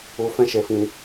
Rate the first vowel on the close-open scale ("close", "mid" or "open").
close